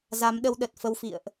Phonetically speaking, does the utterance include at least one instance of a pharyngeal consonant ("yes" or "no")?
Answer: no